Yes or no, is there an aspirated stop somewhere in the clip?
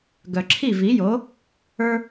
yes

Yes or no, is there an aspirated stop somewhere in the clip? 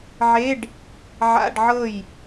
no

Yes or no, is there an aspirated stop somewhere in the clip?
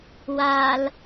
no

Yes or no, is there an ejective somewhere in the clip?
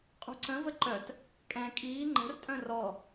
yes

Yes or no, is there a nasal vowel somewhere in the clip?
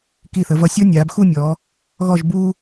no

